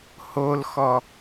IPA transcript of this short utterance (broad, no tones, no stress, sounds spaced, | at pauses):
h o l x ɔ